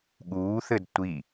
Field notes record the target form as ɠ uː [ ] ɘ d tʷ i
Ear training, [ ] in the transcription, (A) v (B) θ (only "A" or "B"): B